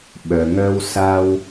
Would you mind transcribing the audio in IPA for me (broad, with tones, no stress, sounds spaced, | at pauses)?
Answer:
ɓ œ˩ ŋ œ˧ w s a˧ w